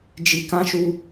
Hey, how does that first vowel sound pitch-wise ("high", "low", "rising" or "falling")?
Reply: low